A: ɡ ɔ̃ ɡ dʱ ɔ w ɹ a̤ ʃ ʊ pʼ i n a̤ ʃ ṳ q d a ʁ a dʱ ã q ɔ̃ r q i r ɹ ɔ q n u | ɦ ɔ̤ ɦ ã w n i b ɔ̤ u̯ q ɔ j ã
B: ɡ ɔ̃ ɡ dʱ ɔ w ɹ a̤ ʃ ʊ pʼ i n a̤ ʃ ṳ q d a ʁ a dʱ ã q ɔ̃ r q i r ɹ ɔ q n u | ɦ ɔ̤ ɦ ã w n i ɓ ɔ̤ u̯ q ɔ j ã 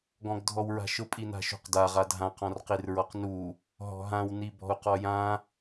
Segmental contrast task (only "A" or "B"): A